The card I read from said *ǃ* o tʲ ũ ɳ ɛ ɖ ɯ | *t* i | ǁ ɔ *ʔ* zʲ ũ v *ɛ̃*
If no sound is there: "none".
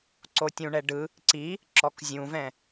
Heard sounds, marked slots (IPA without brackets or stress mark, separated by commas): ǀ, ǀ, k, ɛ̃